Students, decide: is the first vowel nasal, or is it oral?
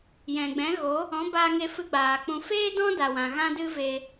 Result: nasal